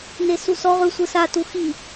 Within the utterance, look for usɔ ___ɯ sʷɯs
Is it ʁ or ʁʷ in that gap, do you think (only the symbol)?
ʁ